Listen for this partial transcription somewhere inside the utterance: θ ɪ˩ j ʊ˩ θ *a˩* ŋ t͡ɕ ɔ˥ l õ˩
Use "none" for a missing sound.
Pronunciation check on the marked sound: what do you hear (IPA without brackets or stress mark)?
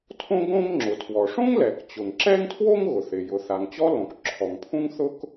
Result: a˩